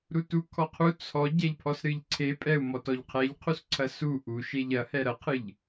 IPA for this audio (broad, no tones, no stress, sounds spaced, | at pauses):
ɾ u t u kʰ ɔ qʰ u t͡sʰ ɔ ɟ ɛ ʎ pʰ ɔ s ɾ ɨ ʎ ǀʰ e pʼ ɛ u̯ m ɔ t ɔ ʎ qʰ ɛ ʎ qʰ u s ǀʰ ɐ s u ʔ u ʃ e ʎ ɐ h ɛ ɾ ɐ qʰ ɨ ʎ